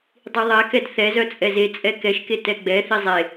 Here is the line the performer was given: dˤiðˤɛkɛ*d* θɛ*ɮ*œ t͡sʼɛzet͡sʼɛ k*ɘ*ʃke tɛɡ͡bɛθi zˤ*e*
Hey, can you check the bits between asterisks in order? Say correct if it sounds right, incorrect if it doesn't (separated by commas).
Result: correct, incorrect, incorrect, correct